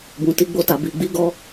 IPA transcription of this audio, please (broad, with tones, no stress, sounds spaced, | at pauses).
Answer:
b ũ˨ t i˧ ɡ͡b o˧ t a˨ b i˨ ɡ͡b i˨˦ ɡ ɔ˧